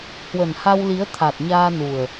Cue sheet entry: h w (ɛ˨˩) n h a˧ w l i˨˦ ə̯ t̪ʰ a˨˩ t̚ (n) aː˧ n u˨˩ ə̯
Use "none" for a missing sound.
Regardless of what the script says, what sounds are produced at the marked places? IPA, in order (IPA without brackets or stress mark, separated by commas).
ə˨˩, ɲ